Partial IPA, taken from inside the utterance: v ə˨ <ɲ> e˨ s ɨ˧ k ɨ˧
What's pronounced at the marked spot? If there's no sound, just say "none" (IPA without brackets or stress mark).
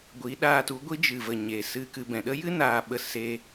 ɲ